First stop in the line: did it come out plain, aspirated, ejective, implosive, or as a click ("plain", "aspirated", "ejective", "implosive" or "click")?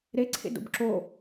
click